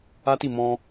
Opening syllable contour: high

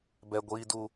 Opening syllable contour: high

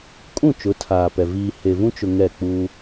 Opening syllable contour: falling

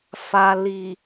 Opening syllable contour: low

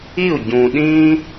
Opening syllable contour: falling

